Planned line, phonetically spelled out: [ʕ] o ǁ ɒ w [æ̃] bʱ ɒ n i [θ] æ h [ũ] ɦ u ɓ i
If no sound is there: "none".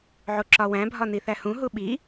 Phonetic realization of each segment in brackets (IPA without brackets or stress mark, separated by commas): ʕ, æ̃, θ, ũ